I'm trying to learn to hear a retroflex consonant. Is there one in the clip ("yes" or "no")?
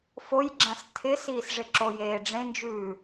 yes